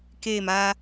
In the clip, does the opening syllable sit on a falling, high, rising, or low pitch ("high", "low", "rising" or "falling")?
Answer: falling